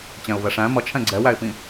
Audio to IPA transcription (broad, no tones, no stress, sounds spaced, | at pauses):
t͡ɕ ɛ̃ ʊ̯ v ɛ ʂ æ̃ m ʌ t͡ʃʰ ɛ̃ ɡ͡ǀ ɛ w æ ɪ̯ p ĩ